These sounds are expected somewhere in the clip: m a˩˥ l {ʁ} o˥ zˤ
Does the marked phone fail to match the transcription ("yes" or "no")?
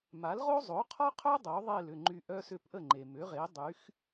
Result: no